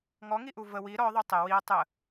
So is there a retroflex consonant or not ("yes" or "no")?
no